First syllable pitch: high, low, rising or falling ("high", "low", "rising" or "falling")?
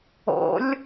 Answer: rising